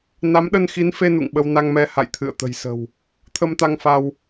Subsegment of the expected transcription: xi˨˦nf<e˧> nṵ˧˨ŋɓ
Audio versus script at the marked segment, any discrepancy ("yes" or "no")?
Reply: no